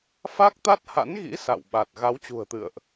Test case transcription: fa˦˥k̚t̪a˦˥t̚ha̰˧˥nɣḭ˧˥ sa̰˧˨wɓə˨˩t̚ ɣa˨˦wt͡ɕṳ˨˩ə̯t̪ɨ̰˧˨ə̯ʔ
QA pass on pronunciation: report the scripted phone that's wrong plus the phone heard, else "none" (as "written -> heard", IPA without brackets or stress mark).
ə˨˩ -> a˨˩